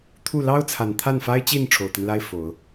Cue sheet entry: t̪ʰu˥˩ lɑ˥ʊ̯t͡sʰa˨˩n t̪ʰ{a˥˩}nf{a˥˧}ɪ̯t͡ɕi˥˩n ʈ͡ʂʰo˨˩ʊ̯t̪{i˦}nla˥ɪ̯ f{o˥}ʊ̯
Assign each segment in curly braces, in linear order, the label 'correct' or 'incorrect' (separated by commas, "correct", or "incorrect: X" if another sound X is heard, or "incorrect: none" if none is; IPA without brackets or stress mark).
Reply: correct, incorrect: a˥, correct, incorrect: o˨˩˦